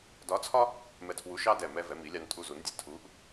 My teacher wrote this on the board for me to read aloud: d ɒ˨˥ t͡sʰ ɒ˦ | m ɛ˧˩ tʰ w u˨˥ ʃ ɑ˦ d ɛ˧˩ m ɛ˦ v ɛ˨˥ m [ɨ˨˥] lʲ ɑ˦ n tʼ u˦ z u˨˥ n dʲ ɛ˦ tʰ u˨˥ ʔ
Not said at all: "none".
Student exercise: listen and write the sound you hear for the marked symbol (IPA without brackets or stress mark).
i˨˥